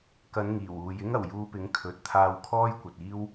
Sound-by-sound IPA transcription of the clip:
k ɐ˨˧ n ŋ iː˨˩ w uː˨ j ɪ˥ ŋ ɐ˨˩ w j uː˧ p ɪ˨˥ ŋ kʰ ɵ˨ t̚ t̪ʰ aː˧ w kʰ ɔː˥ j kʷ ɐ˨ t̚ iː˥ w

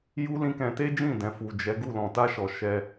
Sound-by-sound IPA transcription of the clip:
j u˦ l ĩ˦ k ɛ̃˧ t e˦ d͡ʒ ĩ˦˨ d ɛ̃˨ f u˨ d͡ʒ ɛ˨˦ ɡ u˦˨ l ɔ̃˨ t a˧ ʃ ɔ˨ ʃ ɛ˧

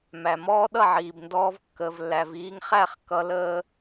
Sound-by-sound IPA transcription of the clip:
m æ˨ m ɔː˦ ɗ ʌ˦˨ ʕ iː˨ b n d ɔː˧ v kː əː˨ v lː æ˨ v iː˧ ŋ χ æ˦˨ χ k ʌ˧ l əː˦

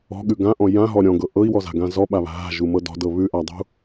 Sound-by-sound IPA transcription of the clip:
ɔ̤ ɠ ʉ ɡ ã ʔ ɔ̃ j ã ɦ ɔ ɾʲ ɔ̃ ɡ ɤ ʔ ɤ i̯ w ɔ z a̤ ɡ ã z ɔ ɓ a β a̤ ɦ a̤ ʒ u m ɤ d ɔ̤ d ɤ β ʉ ʔ a dˤ ṳ

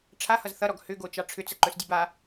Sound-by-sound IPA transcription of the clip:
ʈ͡ʂʰ a h ʌ z θ ʌ ɾ ɔ ɡ h ʏ ɡ o t͡ʃ ɑ ʈ͡ʂʰ ʏ t͡s ə ǃ ɵ s dʲ u b a

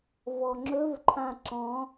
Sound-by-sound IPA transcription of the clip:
v ɔ ŋ͡ǁ ɵ v ǃʰ ã ǁ ɔ̃

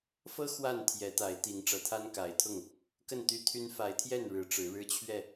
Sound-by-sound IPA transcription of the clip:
f ɤ˦ x w a˥˨ n t̪ʰ j ɛ˨˦ t̪ a˨˦ ɪ̯ t̪ i˨˦ ŋ ʈ͡ʂ ɤ˨˩ t̪ʰ a˦ n k a˨˦ ɪ̯ t̪ʰ ʊ˥˨ ŋ | k ə˥˨ n t̪ y˦ t̪ʰ y˦ n f a˨˦ ɪ̯ t̪ʰ j ɛ˥˨ n ɻ ɻ̩˨˦ ʈ͡ʂ ɻ̩˨˦ ɻ ɻ̩˦ t͡ɕʰ ɥ ɛ˥˨

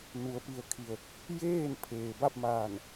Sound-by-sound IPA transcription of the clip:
n u˩˧ ə̯ p i˩ ə̯ kʰ i˩ ə̯ | j eː˥˨ n pʰ eː˩ b a˥˨ p̚ m aː˧˩ n

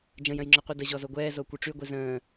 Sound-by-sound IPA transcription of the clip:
d͡ʒ ə̃ j œ̃ j ŋ͡ǁ œ qʷ i d ə ʑ ɔ z o ɡʷ ɛː z o kʷ œ ʈ͡ʂ y ɡʷ i z ə̃ː

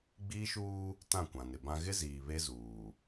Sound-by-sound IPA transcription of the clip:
ɡ͡b iː˦ ʃ uː˦ | t ã˦˨ kʷ ã˨ n ɪ˨ b ã˦ ɣ ɪ˦ z iː˨ β e˦ z uː˨

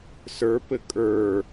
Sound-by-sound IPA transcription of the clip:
s ə˞ p ɘ kʼ ə˞

